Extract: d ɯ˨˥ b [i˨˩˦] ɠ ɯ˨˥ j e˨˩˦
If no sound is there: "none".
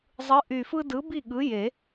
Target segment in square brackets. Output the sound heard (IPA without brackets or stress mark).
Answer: i˥˨